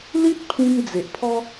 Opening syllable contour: high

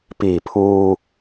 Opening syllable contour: low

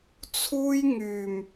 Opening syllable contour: high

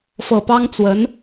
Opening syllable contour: low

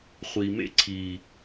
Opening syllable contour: low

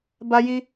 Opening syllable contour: high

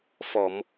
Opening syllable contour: low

